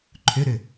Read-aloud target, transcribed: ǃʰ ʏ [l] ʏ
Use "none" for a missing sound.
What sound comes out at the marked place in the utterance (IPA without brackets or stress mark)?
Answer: ɾ